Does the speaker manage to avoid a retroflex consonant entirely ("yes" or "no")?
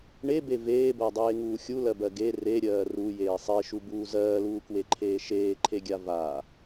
no